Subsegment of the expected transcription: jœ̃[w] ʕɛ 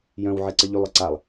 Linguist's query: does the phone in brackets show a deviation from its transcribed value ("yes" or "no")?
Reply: no